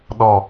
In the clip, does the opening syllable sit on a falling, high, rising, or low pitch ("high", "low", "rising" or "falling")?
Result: low